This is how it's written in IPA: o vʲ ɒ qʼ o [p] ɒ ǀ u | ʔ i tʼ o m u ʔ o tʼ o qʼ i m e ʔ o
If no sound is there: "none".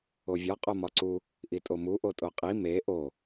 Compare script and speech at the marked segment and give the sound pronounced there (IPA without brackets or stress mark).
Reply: m